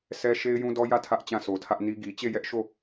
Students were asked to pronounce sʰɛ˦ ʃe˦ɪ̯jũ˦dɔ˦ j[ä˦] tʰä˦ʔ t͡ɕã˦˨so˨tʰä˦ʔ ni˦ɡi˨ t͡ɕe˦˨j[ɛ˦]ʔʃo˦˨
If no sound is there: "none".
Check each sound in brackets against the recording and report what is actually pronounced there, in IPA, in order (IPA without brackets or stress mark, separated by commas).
ä˦˨, ɛ˦